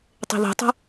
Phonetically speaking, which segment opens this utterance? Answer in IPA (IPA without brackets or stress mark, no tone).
tˤ